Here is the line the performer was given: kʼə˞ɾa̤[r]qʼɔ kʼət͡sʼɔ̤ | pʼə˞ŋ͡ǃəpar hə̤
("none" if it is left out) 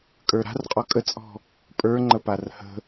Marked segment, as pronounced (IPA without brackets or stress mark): r